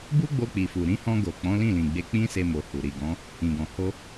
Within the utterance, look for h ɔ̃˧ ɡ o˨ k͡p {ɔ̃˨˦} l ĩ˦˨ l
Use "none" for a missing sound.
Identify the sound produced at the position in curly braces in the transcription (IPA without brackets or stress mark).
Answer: ɔ̃˨˦